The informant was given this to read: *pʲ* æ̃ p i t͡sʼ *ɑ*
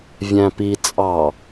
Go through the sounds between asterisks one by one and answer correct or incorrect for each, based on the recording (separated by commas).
incorrect, correct